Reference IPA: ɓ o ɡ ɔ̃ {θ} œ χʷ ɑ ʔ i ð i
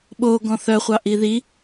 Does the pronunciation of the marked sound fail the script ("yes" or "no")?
no